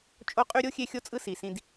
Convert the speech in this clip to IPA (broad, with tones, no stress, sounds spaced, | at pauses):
t͡ʃʼ o˦ qʼ y˦ ɾʲ o˥ xʲ e˦ xʲ o˦ t͡sʼ ɯ˦ s i˩ s ĩ˨ d